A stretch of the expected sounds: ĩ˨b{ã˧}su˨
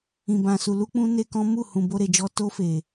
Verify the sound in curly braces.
incorrect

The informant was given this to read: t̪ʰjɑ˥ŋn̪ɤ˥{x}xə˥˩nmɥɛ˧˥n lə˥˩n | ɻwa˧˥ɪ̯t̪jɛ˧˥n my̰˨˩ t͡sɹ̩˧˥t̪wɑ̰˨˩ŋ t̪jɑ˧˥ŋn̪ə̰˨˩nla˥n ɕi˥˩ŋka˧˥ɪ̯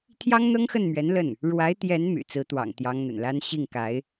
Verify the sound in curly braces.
incorrect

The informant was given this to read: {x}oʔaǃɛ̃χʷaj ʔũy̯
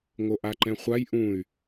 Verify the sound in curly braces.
incorrect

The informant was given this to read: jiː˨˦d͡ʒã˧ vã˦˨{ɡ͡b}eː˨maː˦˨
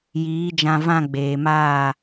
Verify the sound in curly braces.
correct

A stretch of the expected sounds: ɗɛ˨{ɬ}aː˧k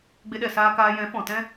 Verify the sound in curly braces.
incorrect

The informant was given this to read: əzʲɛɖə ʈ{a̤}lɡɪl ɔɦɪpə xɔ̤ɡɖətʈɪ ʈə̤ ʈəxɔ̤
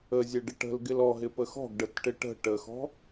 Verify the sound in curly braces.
incorrect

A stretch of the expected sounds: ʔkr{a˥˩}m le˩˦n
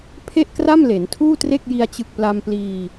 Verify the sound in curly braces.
correct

